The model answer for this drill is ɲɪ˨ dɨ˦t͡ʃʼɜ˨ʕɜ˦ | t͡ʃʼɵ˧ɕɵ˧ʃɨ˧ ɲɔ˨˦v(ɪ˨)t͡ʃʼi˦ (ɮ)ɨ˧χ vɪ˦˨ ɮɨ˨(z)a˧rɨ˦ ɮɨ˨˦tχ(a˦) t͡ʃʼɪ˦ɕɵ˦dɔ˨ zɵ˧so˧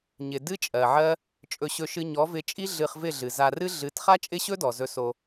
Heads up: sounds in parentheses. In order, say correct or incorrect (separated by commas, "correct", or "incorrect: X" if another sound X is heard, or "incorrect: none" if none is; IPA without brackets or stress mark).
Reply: incorrect: ɪ˧, correct, correct, correct